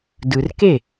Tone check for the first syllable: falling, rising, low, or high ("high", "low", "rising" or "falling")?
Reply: low